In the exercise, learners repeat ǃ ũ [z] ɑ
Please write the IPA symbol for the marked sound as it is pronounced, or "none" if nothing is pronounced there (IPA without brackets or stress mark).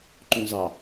z